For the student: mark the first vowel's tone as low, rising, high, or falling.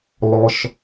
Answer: low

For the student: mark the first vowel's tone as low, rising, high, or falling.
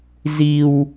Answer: high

